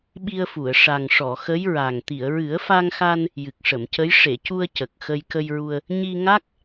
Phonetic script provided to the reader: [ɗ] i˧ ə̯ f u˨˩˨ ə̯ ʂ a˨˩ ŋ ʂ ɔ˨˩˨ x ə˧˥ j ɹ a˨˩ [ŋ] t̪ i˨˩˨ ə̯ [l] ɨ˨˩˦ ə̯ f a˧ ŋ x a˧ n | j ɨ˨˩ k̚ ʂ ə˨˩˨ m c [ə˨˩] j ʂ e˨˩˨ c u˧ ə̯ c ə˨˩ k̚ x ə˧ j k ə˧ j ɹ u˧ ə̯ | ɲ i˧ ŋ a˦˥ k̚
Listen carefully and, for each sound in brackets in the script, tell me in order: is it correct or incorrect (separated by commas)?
incorrect, correct, incorrect, incorrect